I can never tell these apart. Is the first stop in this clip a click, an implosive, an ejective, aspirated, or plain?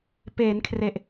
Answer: plain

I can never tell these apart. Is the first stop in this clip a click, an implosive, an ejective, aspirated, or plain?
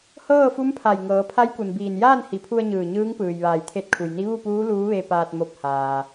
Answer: aspirated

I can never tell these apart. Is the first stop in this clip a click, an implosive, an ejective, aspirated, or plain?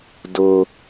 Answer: plain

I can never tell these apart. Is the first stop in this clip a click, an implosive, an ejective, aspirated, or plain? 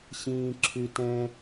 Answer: click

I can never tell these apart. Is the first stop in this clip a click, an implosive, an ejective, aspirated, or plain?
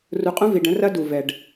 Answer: ejective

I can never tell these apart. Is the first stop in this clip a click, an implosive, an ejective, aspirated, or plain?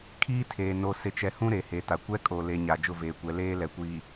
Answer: aspirated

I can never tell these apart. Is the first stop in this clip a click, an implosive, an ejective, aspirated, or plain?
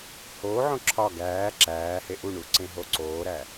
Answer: click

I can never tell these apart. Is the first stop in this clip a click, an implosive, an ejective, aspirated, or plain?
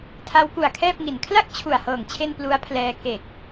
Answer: aspirated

